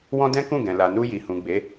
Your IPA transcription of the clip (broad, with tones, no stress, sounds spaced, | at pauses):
w ɔ̃˦ d ɛ̃˦ k ũ˦˨ ɡ ɛ̃˨ l a˨ n u˧ j i˨ h ũ˨ ɡ͡b e˨˦